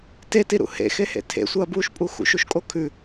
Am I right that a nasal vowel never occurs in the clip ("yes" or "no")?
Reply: yes